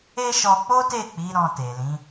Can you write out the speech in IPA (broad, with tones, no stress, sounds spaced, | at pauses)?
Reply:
e˦ ʃ ɔ˧ k͡p o˦ t e˦˨ k͡p i˨˦ ɾ ɔ̃˧ t e˨ l ĩ˨˦